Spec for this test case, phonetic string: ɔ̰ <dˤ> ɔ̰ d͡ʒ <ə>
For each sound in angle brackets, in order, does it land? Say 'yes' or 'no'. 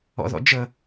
no, yes

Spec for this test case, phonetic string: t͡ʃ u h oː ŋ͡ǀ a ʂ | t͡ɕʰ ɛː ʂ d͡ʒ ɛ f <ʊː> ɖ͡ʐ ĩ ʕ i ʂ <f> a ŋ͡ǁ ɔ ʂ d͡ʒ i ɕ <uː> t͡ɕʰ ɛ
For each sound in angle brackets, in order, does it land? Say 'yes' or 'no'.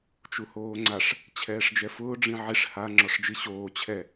yes, no, no

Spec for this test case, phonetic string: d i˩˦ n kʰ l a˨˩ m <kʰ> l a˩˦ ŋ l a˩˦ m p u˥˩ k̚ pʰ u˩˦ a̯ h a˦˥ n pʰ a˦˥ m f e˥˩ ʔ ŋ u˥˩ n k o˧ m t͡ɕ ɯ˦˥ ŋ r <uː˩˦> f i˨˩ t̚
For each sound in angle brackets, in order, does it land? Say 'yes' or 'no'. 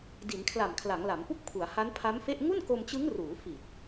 yes, yes

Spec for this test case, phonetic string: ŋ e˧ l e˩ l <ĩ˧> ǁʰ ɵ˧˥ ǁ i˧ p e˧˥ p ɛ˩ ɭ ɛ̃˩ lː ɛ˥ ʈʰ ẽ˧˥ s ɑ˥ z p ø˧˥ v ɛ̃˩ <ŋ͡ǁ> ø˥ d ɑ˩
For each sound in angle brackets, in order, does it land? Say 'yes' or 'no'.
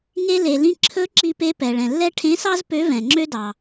yes, yes

